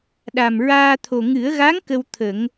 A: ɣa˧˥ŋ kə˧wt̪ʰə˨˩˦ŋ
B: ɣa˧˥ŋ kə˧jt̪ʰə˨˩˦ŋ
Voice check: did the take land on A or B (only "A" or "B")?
A